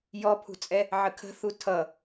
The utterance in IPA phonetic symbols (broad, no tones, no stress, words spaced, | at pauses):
jɔpʰṳt͡sʼɛ | ʕəkʰə̤θu tʰʌ